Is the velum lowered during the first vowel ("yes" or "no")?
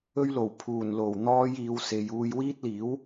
no